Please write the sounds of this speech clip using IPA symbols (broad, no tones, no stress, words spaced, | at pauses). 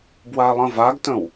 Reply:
bwalˠə̃vaɡtə̃w